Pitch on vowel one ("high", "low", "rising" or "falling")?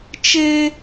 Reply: high